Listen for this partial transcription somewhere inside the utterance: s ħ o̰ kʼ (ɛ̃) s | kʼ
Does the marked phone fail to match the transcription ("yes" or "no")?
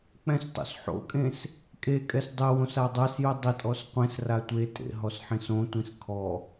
yes